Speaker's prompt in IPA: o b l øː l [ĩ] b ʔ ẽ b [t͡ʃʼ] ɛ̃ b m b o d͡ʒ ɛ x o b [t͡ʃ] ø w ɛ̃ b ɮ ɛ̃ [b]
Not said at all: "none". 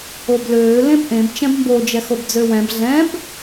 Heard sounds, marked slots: ẽ, t͡ʃ, d͡z, b

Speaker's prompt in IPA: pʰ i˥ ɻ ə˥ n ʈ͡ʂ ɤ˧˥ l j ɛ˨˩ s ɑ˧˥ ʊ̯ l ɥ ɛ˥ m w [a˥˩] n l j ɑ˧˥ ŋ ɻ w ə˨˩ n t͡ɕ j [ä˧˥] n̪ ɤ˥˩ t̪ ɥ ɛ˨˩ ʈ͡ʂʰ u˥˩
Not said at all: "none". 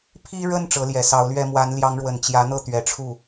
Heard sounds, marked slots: a˧˥, ä˧˥

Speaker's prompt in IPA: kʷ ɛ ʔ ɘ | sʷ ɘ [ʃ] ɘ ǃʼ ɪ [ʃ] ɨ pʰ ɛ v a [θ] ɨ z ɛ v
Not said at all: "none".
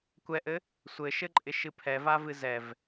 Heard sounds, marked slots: ʃ, ʃ, v

